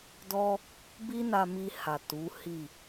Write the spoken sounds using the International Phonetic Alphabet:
dɔ˦ | bi˦na˧mi˧ ha˨ tu˨˦hi˦˨

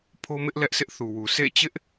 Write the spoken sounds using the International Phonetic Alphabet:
pʰo˦mɪ˦ʔ lɛ˦ʔsɪ˦ʔθu˨wu˨ sʰḛ˦˨t͡ɕɪ˦ʔ

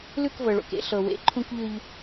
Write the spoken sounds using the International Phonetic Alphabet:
lʉ˦˨kvɤ˨ɭo̰˨k ḛ˦ɬɤ˨wḛ˨ ǃʰũ˦kʎʉ˦ʎ

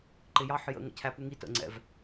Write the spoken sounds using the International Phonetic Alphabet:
ǃɪjɑħ jə̰ ŋə̰cʰæpuŋi tə̰ŋ͡ǀɛ̰v

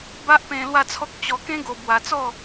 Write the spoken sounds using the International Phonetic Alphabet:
ba˦ʔpẽ˧ lwa˥˧t͡sʰɔ˦k̚ t͡ɕɔ˧kẽ˦ɡo˧ bwa˧t͡sɔ˥˧

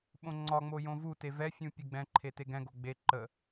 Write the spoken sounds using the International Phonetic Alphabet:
ɓõŋ͡ǀɒŋ͡mo jõvute vɛfʲũ pʲɛɡ͡bɛ̃ǃʰe teɡɛ̃ɡo ɡ͡be ǃə

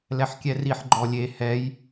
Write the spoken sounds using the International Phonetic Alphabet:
lɛħkʲɛriħ ɡ͡ǃɔlʲe hɛj

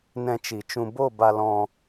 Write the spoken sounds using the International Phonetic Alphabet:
nɛ̃˧t͡ʃi˨t͡ʃũ˧ bo˦˨ba˧lɔ̃˧

